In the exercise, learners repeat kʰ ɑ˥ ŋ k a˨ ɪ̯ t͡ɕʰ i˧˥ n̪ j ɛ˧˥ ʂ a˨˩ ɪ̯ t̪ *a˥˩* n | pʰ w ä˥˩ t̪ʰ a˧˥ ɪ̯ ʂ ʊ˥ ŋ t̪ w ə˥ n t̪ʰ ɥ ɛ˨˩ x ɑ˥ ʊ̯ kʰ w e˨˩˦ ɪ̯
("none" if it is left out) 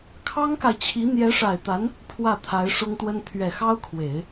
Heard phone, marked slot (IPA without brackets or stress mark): a˧˥